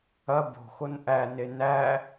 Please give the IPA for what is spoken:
ɐ bo̤xon ʔæne næ

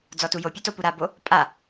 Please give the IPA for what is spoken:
d͡zɔtujopʲu topuɾabo | pʼa

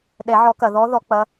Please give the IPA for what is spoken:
ɗɛ˨˩˦ ʕɔ˨˩˦kɐ˩ ðɔ˨˦ðɔ˨˩˦ k͡pɐ˩˧˩

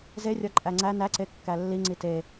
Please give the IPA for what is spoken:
zerʲɒ ǃʼæŋ͡ǀæ næǀe kːælːiŋ͡ǀi te

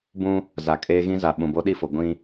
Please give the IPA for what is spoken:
bũ˦ | za˨ kʼeː˦ɣĩ˦za˨ ɓũ˨bo˦ ɗi˦˨fo˨ ɡʷĩ˦

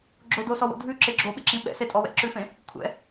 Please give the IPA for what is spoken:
ɡ͡ǁodosɔwo̰ dʱʉǁɪ ɡ͡ǁoɓɪǁĩ ɓɛ̰setʼɔ wɛ̰ǁʉfẽ | kʷʰɛ̰

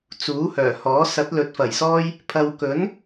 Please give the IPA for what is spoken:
t͡suː˨˥hœː˨˩hɔː˨˥ sɐ˨˥t̚lɵ˨˥t̚fɐ˨˩jsɔː˥j | pʰɐ˨wkɵ˨˥n

